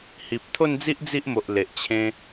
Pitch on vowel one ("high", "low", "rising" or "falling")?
low